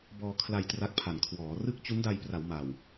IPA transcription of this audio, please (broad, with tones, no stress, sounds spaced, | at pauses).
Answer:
b ɔː˧ kʰ l a˧ j t r a˦˥ k̚ pʰ a˨˩ n kʰ w ɔː˩˦ r ɯ˥˩ k̚ t͡ɕ u˦˥ n d a˧ j p r a˩˦ w m a˨˩ w